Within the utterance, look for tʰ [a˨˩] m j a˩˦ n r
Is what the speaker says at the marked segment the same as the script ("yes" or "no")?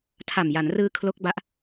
yes